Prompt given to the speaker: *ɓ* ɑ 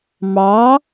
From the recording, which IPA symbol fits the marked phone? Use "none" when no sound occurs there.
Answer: m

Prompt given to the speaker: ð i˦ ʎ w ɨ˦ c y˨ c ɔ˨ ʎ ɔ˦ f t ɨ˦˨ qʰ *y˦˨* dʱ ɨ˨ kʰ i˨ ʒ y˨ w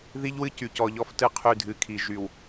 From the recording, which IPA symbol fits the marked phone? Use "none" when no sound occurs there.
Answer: y˦˨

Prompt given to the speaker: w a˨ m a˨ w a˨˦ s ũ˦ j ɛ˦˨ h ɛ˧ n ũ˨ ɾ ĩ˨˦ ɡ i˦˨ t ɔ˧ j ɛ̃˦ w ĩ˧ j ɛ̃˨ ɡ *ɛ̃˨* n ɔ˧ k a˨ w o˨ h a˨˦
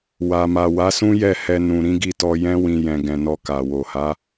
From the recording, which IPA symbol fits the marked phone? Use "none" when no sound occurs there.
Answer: ɛ̃˨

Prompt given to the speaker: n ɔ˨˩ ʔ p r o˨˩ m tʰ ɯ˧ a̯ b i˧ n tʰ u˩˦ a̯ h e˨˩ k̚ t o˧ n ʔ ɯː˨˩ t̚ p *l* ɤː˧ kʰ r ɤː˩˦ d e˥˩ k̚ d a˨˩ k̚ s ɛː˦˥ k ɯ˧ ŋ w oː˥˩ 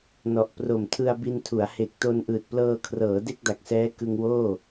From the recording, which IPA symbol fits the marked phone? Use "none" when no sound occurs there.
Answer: l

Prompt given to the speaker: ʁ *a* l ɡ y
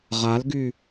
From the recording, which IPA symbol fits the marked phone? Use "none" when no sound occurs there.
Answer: a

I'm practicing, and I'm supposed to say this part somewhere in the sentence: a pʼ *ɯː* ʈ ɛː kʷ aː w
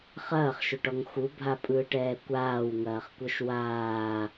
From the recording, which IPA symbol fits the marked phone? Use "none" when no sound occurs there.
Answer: ɯː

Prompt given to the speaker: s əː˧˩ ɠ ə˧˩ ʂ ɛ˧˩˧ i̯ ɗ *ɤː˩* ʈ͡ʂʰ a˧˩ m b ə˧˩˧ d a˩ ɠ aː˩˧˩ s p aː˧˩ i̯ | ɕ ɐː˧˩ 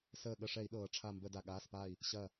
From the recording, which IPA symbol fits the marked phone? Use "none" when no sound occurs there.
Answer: ɤː˩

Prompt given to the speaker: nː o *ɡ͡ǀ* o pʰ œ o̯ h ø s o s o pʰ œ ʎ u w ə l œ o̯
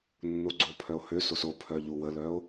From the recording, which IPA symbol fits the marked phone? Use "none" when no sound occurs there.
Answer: ɡ͡ǀ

